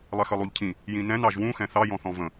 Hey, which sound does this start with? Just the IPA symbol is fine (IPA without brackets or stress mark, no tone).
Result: lˠ